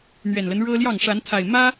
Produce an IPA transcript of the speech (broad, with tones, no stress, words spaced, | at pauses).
n̪ɥɛ˨˩nlə˦n ɻɤ˦ljɑ˥˨ŋ ʂa˨˦nt̪ʰa˨˩ɪ̯ mä˦